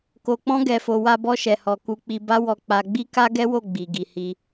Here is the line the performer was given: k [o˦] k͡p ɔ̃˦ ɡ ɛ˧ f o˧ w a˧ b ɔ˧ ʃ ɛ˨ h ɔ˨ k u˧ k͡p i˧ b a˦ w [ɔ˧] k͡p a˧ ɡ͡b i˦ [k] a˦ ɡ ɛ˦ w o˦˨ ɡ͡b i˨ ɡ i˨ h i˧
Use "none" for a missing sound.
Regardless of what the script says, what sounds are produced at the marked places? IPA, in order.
o˧, ɔ˧, k

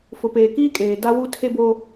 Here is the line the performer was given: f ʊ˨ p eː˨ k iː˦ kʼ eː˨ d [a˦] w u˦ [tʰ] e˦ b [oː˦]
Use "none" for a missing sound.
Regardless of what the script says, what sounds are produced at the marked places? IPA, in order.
a˦, tʰ, oː˦

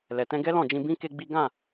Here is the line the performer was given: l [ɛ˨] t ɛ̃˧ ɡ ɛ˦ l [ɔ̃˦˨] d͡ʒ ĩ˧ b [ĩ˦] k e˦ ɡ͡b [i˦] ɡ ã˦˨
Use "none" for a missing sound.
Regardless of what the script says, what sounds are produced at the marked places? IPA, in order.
ɛ˨, ɔ̃˦˨, ĩ˦, i˦

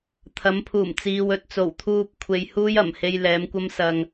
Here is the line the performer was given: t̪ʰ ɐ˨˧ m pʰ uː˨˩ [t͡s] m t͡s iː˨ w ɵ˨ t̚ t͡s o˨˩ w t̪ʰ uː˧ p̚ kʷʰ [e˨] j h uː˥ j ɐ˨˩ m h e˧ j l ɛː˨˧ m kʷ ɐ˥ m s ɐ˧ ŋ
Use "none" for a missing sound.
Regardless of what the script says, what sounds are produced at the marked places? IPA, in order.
none, e˧

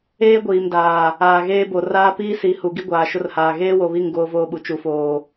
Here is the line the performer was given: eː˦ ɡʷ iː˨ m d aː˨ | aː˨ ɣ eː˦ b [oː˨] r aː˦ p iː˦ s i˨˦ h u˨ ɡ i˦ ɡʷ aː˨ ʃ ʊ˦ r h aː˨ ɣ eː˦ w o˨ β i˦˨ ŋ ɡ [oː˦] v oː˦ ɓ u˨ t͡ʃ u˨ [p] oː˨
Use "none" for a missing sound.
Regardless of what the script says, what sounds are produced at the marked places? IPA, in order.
o˨, oː˦, f

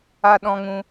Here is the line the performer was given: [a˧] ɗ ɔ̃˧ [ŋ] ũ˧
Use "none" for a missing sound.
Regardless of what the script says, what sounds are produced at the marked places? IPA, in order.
a˧, ŋ

